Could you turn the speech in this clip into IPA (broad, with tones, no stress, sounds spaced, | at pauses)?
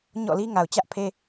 ɲ ɔ̰˦˨ l i˦ ŋ a˨ ʊ̯ t͡ɕ ä˦ ʔ pʰ e˦